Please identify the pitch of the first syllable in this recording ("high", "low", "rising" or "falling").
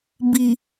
low